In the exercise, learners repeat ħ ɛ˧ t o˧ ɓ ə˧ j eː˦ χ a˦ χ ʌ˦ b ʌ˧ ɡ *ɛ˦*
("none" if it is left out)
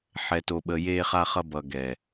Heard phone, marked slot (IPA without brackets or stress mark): ɛ˨